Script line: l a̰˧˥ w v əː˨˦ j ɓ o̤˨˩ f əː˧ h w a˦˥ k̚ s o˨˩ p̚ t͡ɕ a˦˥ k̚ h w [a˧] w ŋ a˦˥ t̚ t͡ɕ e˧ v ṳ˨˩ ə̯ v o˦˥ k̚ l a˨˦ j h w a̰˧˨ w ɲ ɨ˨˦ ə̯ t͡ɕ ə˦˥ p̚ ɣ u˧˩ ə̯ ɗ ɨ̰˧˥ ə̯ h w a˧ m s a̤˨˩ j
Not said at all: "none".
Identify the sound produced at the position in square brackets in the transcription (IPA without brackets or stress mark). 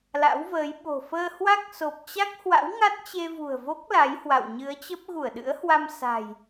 a̰˧˥